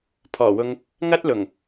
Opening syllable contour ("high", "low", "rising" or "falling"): low